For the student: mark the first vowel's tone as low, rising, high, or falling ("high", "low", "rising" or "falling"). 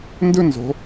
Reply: high